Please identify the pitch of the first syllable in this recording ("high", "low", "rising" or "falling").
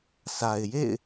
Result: low